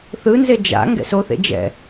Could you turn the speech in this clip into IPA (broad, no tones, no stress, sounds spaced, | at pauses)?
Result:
θ ɯ n z e d͡ʒ a̰ ŋ ɡ ɛ̰ s o θ ḛ d͡ʒ ɛ̰